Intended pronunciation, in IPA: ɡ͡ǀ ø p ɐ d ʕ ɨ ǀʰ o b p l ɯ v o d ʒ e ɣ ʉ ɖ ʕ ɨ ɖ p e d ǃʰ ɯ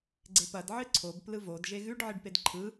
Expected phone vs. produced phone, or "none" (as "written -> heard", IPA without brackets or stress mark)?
ø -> e